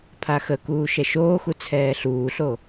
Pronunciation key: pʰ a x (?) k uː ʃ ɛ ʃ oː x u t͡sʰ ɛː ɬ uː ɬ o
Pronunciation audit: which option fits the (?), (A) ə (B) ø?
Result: A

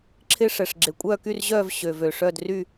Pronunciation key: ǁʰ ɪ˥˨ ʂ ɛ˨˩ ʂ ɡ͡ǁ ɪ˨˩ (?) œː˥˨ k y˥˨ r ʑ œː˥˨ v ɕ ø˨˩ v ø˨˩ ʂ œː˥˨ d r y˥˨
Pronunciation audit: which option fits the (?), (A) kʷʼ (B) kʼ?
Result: A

